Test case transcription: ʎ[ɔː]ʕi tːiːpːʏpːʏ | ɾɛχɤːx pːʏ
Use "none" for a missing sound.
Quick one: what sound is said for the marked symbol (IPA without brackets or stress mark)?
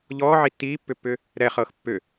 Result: ɔː